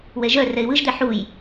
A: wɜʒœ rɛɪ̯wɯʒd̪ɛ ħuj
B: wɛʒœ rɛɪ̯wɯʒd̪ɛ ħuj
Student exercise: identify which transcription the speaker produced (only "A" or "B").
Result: B